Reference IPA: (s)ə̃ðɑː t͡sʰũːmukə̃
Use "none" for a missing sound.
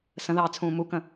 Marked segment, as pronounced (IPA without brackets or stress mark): s